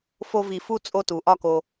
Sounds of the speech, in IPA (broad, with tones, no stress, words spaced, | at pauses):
fo˦vi˧fu˦ t͡sʼo˦tu˨ʔɒ˦˨ko˧